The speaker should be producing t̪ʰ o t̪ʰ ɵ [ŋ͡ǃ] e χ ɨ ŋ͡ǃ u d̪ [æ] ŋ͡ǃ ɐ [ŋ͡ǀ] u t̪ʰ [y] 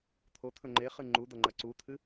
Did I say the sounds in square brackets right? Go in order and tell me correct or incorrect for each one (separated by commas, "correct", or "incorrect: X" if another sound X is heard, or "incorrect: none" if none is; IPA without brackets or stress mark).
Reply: correct, incorrect: ɐ, incorrect: ǀ, incorrect: ɨ